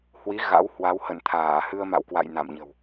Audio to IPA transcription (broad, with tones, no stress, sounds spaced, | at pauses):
h w i˨˦ ɣ a̰˧˥ w h w a˨˦ w h ə̰˧˨ n t̪ʰ aː˧˩ h ɨ˧ ə̯ m a̰˧˨ w k w a̰˧˨ j n a̰˧˨ m ɲ ə̤˨˩ w